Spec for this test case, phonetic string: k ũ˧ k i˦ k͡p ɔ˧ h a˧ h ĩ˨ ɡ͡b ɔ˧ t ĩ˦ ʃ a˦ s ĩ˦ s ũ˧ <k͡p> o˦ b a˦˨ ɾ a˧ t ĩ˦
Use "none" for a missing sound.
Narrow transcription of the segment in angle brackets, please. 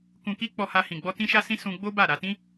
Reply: ɡ͡b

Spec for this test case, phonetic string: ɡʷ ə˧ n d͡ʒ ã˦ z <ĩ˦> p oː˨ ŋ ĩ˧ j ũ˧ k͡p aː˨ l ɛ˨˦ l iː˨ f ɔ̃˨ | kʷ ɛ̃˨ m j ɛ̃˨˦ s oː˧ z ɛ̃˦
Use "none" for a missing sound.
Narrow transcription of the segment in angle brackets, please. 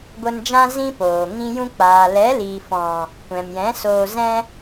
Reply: ĩ˦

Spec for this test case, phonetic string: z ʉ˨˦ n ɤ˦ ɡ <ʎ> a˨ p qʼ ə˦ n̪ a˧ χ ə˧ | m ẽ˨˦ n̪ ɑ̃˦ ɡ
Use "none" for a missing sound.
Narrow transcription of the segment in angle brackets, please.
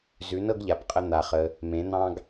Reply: ʎ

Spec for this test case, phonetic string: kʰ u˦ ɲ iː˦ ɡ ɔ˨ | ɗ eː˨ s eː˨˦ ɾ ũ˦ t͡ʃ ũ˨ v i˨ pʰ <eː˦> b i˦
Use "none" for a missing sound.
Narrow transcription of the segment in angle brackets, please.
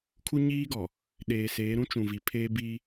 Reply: eː˦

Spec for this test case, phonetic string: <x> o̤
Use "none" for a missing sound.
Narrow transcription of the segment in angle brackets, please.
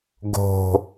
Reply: ɡ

